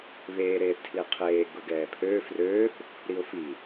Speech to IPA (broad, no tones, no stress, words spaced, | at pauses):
βeː ɾeːθtʰliqʰeː ɡʊɡɛːpʰøː frøːθ | ɾiʊ̯fi